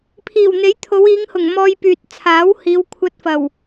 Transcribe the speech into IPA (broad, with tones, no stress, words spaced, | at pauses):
pʰiː˨˩wn̪e˨˥jt̪ʰo˨˧w iː˨˧ŋhʊ˨˩ŋ mɔː˧jpyː˨t̚t͡sʰaː˨˥whiː˨˧w kʷʰɐ˧t̚fɐ˨˩w